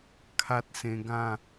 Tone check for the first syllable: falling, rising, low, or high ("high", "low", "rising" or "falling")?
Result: high